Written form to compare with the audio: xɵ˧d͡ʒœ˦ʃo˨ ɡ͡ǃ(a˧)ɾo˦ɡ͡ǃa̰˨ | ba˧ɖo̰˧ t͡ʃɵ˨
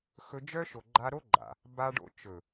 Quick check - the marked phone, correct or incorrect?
correct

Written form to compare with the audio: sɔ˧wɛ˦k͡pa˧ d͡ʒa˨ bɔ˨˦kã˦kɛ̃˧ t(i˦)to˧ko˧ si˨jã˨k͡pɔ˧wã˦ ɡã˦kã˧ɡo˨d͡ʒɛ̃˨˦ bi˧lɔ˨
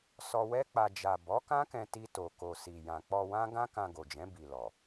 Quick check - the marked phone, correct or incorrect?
correct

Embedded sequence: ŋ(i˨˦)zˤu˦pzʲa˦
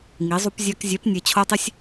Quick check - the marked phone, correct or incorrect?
correct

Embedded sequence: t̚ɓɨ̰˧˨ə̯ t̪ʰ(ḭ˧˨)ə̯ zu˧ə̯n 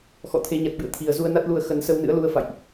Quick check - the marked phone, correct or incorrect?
incorrect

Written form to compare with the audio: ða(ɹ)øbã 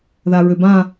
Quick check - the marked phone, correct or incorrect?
correct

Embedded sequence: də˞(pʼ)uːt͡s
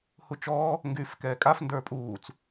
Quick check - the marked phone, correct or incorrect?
correct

